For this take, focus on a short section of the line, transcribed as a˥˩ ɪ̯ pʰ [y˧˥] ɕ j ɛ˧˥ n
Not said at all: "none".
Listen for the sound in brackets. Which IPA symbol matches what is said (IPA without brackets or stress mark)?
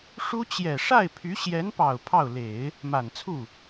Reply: y˧˥